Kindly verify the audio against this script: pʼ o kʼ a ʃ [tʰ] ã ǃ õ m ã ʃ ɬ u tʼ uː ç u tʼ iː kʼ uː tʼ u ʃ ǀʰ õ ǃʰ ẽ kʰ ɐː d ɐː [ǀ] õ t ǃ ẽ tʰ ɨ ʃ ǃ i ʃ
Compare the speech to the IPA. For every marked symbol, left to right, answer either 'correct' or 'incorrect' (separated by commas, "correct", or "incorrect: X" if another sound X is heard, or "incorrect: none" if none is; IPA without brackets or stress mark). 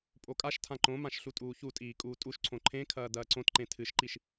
correct, correct